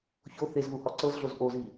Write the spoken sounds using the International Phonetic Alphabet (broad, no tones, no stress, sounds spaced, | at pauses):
ç o θ e z ð u h ɔ ǀ ɤ z ɮ o z ʔ o z i